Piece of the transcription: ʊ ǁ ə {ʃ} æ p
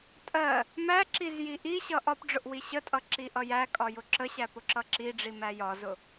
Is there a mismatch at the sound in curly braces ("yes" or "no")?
yes